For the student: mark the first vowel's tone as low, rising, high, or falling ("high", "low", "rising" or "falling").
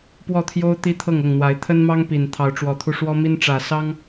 falling